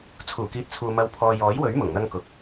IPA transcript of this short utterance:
t͡sʰ uː˨˩ k iː˨ t̚ t͡sʰ uː˨ m ɐ˨ w pʰ ɔː˨ j ɔː˨˥ j w ɵ˨˥ ɥ m ʊ˨˩ ŋ n̪ ɐ˧ ŋ k ʊ˨ k̚

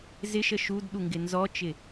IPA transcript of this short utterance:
z ɪ ʃ ə ʃ u d ɗ u ŋ ɡ ɪ n z ɔ t͡ʃ ɪ

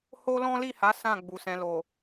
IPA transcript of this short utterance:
h o˦ l ɔ̃˦ l i˦˨ h a˨˦ s ã˦˨ ɡ͡b u˨ s ɛ̃˧ l o˨

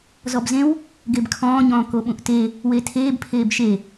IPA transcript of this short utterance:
z ɔ b z ẽ w | ɡ e b kʰ ɔ̃ː ɲ ɔ̃ː k o ɓ ũ ʔ t e | w e tʰ eː b pʰ eː b ʃ e

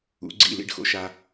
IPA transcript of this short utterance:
ṵ˩˧ ɡ͡ǀ ḭ˧˩ l ḭ˥˧ ɖ x o̰˧ ʃ a˧

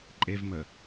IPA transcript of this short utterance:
ǃʼ e v m ə

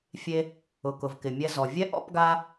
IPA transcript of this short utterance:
fʲ e˧ | ʊ˩ k ʊ˩ v k ɪ˩ mʲ ɛ˧ z ɔ˩ vʲ ɛ˥ ʔ ɔ̰˥ p ɡ a˥

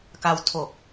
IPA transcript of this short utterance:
k a˧ w tʰ oː˨˩ k̚

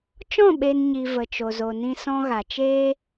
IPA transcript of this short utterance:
t͡ʃ ɔ̃˦˨ ɓ e˧ n ɲ i˨ v ə˨ t͡ʃ o˨ z o˨ n ĩ˧ s ɔ̃˧ ɣ a˨ t͡ʃ eː˦

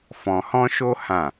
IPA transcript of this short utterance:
f ɔ̃˧ h ɔ̃˦ ʃ o˦ h ã˦˨

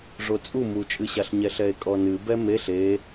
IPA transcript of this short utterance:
ʐ o t͡sʼ u m u t͡ʃʼ ɨ ɕ a ɬ ɲ ɛ ɬ ɛ e̯ kʼ ɔ n ɨ b ɛ m e ɬ e

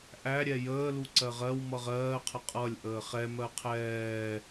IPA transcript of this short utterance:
ʔ æ ɾʲ ɛ j əː l u ǀ ɜ ʁ ɜ w m ʌ ʁ ɜː qʰ ə qʼ ʌ lʲ ʔ əː χ ɛ m ɜ qʰ ɛː

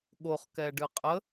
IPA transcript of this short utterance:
ɠ o χ k ɛ ɖ ɨ qʼ ə

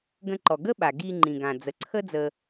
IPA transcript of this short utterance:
ɡ ə̃˧ ǃ ɔ˩ ɡ ə˥ ɓ a˩ ɡ i˧ ŋ͡ǃ ĩ˩ ɡ ã˩ d͡z ə˩ ǀʰ ə˥ d͡z ə˧

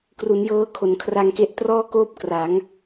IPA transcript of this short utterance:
k r u˩˦ n j ɤː˧ kʰ o˩˦ n kʰ r a˧ ŋ k e˦˥ ʔ t r ɔː˥˩ k oː˥˩ p̚ k r a˩˦ ŋ

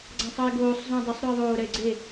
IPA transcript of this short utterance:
ɡ͡ǀ ã sˤ ʌ e̯ ɡ oː sˤ z ũ dˤ ʌ sˤ ɾ u e̯ ðˤ oː ɾ ɛ e̯ ɡ͡ǀ e

